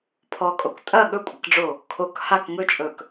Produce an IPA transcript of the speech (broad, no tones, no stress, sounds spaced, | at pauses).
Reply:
pʰ ɔ kʼ o k tʼ ɐ ɠ ɵ kʷʼ ɐ k ɖ͡ʐ o | kʰ o k h a k ŋ ɵ t͡ʃʼ ɵ k